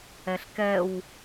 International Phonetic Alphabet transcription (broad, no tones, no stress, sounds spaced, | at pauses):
ɛ ɬ k ɛ w